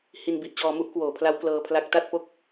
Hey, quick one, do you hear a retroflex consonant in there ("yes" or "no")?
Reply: no